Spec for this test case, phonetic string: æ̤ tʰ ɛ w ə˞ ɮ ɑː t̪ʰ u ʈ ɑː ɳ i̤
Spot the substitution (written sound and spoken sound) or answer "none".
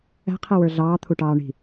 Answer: tʰ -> qʰ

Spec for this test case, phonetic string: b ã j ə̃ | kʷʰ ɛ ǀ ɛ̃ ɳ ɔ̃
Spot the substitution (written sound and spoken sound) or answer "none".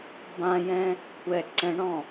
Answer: ə̃ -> ɛ̃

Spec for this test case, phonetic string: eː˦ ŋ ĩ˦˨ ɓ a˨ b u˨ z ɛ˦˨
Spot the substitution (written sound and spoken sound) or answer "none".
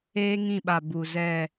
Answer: none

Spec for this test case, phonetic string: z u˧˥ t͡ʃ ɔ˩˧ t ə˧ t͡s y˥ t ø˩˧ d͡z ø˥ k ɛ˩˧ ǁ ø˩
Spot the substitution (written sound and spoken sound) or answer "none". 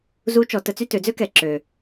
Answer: none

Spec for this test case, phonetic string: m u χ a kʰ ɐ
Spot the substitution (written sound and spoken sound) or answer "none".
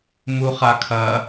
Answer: none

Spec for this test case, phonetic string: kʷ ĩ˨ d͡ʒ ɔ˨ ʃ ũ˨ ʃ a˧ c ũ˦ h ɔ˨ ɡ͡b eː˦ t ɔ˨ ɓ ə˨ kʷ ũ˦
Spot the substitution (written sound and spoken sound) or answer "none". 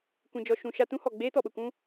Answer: c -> t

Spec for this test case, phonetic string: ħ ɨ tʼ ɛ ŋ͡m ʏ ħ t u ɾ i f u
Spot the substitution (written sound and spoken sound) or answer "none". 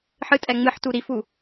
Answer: ʏ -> ɨ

